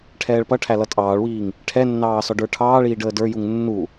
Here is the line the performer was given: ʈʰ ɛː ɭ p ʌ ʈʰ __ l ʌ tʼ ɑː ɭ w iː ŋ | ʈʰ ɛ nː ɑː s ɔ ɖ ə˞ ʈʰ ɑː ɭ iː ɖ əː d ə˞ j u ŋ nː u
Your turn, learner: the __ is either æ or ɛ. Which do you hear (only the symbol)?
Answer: æ